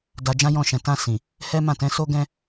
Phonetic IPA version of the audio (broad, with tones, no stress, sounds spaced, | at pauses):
d a˧ d͡ʒ ã˦ j ɔ̃˦˨ ʃ ɛ̃˨ t ã˧ s ĩ˨ | h ɛ˦ m ã˦˨ t ɛ̃˨˦ s o˧ ɡ ɛ̃˧